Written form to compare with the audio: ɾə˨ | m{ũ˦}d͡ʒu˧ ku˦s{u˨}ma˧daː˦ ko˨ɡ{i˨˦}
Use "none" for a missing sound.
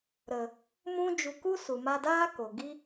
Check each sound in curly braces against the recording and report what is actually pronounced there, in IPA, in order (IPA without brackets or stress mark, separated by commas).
ũ˦, u˨, i˦